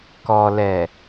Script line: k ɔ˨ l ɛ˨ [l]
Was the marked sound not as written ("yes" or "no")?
yes